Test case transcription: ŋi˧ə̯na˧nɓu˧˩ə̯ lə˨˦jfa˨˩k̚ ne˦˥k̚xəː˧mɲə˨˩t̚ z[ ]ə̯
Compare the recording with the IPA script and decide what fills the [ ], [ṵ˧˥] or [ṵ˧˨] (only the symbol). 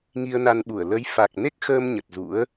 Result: ṵ˧˥